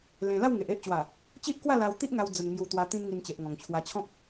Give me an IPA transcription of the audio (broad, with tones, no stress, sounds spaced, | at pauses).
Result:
l ẽ˧ l a˥˧ w ŋ e˨ ʔ e˦ ʔ t͡ɕ w a˨˩ | t͡ɕ i˦ ʔ k w a˥˧ l a˧ w t̪ i˦ ʔ ŋ a˧ w d͡z ə˨˩ n ŋ j u˨˩ t̪ w a˨˩ t̪ ĩ˧ n ŋ i˨˩ n t͡ɕ e˨ ʔ ŋ ɔ̃˨˩ ŋ t͡ɕʰ w a˧ t͡ɕʰ ɔ̃˦ k̚